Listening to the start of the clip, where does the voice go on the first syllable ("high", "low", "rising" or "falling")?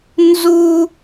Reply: high